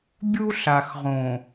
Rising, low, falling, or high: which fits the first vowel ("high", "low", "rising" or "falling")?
high